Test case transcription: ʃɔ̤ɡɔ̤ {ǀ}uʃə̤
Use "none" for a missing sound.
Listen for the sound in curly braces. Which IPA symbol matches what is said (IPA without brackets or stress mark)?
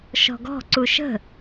ǀ